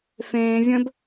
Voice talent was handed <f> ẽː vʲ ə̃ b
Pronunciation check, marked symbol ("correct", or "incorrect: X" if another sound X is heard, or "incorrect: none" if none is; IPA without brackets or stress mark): correct